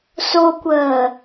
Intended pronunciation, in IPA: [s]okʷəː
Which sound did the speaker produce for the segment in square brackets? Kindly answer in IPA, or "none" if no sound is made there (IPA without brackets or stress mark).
s